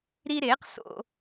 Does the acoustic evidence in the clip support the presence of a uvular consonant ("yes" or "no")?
yes